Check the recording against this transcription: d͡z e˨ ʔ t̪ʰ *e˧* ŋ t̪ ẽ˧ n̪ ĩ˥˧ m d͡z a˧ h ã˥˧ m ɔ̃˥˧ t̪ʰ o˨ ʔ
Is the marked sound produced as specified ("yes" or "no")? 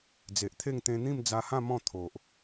no